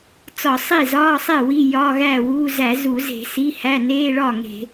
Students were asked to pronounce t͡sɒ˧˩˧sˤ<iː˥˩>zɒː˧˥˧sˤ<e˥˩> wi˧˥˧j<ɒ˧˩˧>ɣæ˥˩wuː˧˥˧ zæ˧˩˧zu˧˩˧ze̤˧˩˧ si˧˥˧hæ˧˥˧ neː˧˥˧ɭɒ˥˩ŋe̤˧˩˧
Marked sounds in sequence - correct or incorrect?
incorrect: i˥˩, correct, incorrect: ɒ˧˥˧

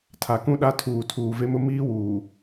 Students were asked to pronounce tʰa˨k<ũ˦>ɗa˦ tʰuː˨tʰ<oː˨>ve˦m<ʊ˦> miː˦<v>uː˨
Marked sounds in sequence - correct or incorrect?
correct, incorrect: uː˨, correct, incorrect: w

